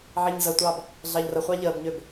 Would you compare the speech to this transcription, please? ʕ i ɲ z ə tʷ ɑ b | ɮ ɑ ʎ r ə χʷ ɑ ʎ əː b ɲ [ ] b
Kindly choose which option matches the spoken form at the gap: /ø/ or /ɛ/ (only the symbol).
ø